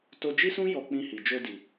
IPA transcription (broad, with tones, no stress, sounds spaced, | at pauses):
t o˧ d͡ʒ i˦ s ũ˦ j ɔ˧ k͡p ĩ˧ h i˨ d͡ʒ o˧ d i˨